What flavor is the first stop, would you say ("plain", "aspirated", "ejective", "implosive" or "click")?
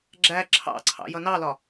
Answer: click